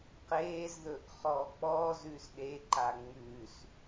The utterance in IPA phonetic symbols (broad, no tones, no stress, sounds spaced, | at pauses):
q eː z ð ɵ ʔ χ ɔː k͡p ɔː z ʉː s ɗ e ǃ a ŋ͡m ʉː s